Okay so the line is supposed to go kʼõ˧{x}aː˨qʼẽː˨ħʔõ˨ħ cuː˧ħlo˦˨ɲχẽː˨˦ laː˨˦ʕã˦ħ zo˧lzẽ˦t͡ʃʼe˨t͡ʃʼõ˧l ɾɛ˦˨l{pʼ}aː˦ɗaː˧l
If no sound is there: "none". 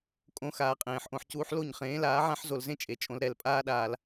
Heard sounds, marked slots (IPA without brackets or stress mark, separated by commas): x, pʼ